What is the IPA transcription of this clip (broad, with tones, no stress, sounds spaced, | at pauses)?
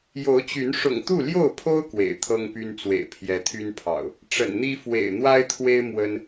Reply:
j o˨˦ ʊ̯ t͡ɕ y˨˦ n ʂ ʊ̰˨˩ ŋ t̪ u˥˨ l j o˥˨ ʊ̯ pʰ o˦ ʊ̯ k w ḛ˨˩ ɪ̯ t̪ʰ ɤ˦ ŋ p y˦ n t͡s w ḛ˨˩ ɪ̯ pʰ j ɛ˨˦ t̪ʰ y˦ n pʰ ɑ̰˨˩ ʊ̯ | ʈ͡ʂ ə̰˨˩ n n̪ i˦ f w ḛ˨˩ ɪ̯ n̪ w a˦ ɪ̯ t̪ʰ w e˦ ɪ̯ m w ə˦ n